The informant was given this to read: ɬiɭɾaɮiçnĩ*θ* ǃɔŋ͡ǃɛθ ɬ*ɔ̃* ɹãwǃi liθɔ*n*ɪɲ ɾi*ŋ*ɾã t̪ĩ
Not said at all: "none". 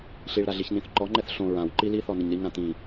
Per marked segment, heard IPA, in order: θ, õ, n, ŋ

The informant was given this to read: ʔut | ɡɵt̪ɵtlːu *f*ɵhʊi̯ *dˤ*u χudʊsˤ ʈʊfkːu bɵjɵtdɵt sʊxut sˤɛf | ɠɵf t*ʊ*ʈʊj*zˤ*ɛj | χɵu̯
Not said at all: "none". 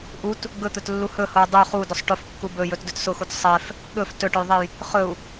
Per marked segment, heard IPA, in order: h, dˤ, ɵ, ðˤ

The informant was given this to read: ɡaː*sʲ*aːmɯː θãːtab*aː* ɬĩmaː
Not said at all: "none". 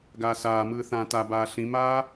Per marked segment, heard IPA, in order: s, aː

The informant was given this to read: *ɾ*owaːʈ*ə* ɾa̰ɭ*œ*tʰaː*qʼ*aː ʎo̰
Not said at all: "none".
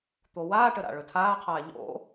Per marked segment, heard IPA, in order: t̪, ə, ɵ, qʰ

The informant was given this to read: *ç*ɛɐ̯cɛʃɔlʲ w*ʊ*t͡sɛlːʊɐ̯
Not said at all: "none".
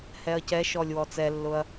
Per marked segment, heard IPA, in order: h, ɔ

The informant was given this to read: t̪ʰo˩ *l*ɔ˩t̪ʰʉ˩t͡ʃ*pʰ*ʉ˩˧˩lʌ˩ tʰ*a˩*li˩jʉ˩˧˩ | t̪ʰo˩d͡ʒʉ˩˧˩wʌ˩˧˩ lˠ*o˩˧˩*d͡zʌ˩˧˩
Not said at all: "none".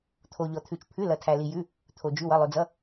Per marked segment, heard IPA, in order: ʎ, pʰ, æ˩, o˩

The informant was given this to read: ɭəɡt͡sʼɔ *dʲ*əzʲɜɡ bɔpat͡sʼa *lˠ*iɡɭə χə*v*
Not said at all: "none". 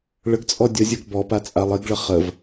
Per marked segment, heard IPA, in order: dʲ, lˠ, v

